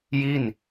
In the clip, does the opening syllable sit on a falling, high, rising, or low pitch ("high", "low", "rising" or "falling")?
falling